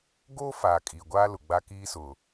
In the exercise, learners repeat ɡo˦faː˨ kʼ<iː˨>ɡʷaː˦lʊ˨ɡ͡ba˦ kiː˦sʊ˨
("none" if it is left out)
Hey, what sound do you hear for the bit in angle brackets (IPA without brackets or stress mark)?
iː˨